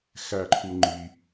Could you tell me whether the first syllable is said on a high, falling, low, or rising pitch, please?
low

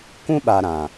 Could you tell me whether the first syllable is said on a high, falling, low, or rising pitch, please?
high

